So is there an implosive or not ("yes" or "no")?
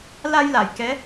no